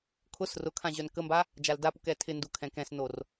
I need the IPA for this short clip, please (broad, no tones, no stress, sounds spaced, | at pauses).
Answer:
kʰ ʊ s r ʊ kʰ ã ʑ œ n k ə m b a | d͡ʒ a l d a p u k ɛ tʰ ɪ n d u kʰ ɛ̃ k ɛ̃ s n o r